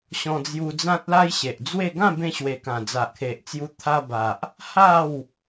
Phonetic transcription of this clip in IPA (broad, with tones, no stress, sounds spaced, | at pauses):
ɕ ɔ̃˧ d͡z j u˧ d͡z ã˦ t̚ l a˦ j ɕ e˨ ʔ d͡z w e˥˧ ɡ ã˥˧ b ẽ˧ ɕ w e˨˩ k ã˨˩ d͡z a˨ ʔ kʰ e˨ ʔ t͡s j u˧ t̪ʰ a˧ b a˨ ʔ | h a˥˧ w